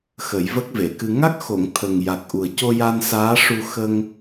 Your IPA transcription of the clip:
xə˨˩˦jvə˦˥k̚ve˨˩˨kɨ˧ ŋa˦˥k̚xo˨˩˨ŋ t̪ʰə˨˩ŋja˨˩k̚ ʔu˨˩ə̯co˧ja˧n saː˧˥ʂu˧ xə˧ŋ

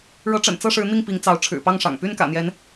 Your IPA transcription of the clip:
ɻɤ˨˦ʈ͡ʂə̰˨˩n t͡sɤ˥˨ʂɻ̩˨˦ n̪i˥˨ŋpi˨˦ŋt͡sɑ˨˦ʊ̯ ʈ͡ʂʰɻ̩˨˩pɑ˥˨ŋʂɑ̰˨˩ŋ py˥˨nkä̰˨˩n̪jɛ˨˦n

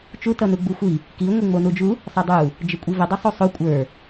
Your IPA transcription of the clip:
t͡ʃu tʌnuɡ͡buxʷi | ki ŋʷiŋ͡monud͡ʒu | sˤʌdˤu | d͡ʒəkʷʼivə dˤʌsˤosˤo kʷʼə˞

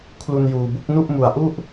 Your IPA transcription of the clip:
kʰlu˧njuː˨˩bu˦˥k̚ nu˥˩ʔmu˨˩a̯ʔu˥˩ʔ

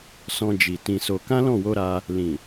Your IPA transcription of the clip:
sɔ̃˧d͡ʒi˨ tĩ˧so˧ kã˦lɔ̃˦˨wo˧ ɾa˧ | lĩ˨

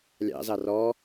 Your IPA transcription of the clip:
lʲɑ̰zɑ rɔ

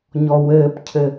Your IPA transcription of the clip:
ɲɔwɘːpcʰɘ

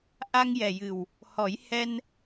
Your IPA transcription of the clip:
ʔa˧ŋjɛ˨˩jɨ˨˩w | hɔ˨˩˦jhɛ˧n

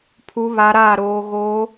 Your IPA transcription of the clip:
pʰu˦˥βa˦˥ɾaː˥˧ɾoː˦˥ ɣoː˦˥

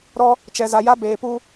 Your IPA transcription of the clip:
ɾɔ˦ | t͡ʃɛ˨za˨ja˦ beː˨pu˦

